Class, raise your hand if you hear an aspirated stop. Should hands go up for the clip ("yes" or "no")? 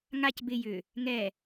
no